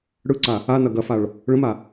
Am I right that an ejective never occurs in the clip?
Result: yes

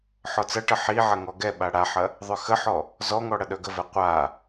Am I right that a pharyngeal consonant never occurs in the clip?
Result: no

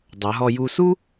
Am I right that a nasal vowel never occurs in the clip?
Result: yes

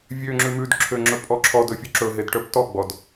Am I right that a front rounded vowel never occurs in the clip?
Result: no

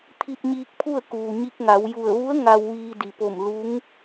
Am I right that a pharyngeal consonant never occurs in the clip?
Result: yes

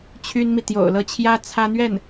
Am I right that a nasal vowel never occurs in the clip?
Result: yes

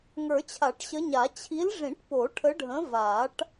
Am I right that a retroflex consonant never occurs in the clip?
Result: no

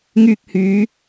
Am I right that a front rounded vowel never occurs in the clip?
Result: no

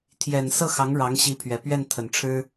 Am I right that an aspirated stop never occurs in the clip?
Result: no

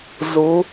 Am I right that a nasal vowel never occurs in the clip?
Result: yes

